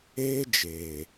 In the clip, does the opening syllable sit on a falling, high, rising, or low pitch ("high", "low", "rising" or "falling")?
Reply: high